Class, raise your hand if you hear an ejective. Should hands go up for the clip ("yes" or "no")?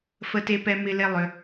no